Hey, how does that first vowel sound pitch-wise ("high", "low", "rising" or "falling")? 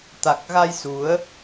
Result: low